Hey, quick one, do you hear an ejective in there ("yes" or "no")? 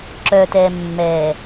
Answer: no